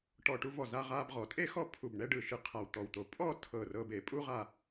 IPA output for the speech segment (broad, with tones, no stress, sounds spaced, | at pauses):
ʈ ɔ˧˩ ʈ u˧ v ɔ˧˩ z a˧ ʁ a˧ b ʁ ɔ˩˧ tʼ e˥ x ɔ˥˧ pʰ u˧˩ b ɳ ɛ˥˧ ɖ ɯ˧˩ ʃ ɯ˧ qʰ a˧˩ w t̪ ɔ˧˩ w t̪ o˧ pʼ ɔ˥˧ tʰ ɤ˧˩ r ɤ˧ b e˩˧ pʼ u˥ ʁ a˥˧